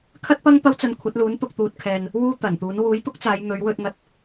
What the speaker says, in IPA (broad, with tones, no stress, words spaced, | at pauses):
kʰɐ˥t̚pɐ˥ŋpɐ˥wt͡sɐ˧n kʷʰɐ˨˥t̚luː˨˥nt̪ʊ˧k̚ t̪uː˧t̚kʰɛː˧n | wuː˥t̪ɐ˨˩nt̪uː˨˥n wuː˨˥jt̪ʊ˥k̚t͡saː˨˧j n̪ɵ˨˧ɥwɵ˧t̚ŋɐ˧t̚